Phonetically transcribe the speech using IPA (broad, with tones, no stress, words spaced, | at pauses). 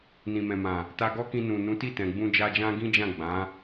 nĩ˨mɛ̃˨mã˨ | ta˧ɡɔ˦kĩ˧ nũ˨nũ˨˦ti˦˨ tɛ̃˨ɡ͡bũ˧d͡ʒa˧d͡ʒã˦ ɡĩ˦d͡ʒã˦˨ ɡ͡bã˨˦